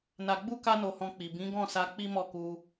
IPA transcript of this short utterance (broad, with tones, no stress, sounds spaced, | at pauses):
n a˧ ɡ͡b u˦ k a˦ n o˧ h ɔ̃˧ k͡p i˨ b ĩ˨˦ ɡ ɔ̃˦˨ s a˧ k͡p i˦ m ɔ˦˨ k u˧